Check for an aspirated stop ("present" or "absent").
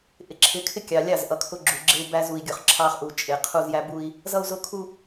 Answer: present